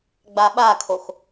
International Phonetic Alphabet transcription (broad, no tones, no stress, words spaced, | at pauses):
ɡ͡baɓakʰox